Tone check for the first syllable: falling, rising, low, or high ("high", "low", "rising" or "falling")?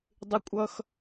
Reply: high